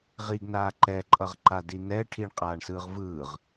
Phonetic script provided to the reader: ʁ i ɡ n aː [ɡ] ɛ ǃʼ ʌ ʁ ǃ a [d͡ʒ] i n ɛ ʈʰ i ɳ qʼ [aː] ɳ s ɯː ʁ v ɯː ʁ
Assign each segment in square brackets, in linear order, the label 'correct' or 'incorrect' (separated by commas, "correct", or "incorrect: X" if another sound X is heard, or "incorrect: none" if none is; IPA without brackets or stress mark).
incorrect: ǃ, incorrect: d, correct